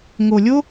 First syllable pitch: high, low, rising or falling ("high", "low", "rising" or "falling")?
low